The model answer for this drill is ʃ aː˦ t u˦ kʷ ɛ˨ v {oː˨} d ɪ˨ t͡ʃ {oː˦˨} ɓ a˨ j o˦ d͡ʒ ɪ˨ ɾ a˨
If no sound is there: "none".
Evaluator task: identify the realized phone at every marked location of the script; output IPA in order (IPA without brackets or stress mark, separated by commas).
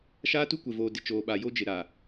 oː˨, oː˨